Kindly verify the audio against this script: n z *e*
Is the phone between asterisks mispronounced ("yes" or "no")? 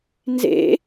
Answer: yes